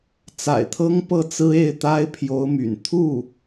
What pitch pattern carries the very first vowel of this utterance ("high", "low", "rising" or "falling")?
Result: low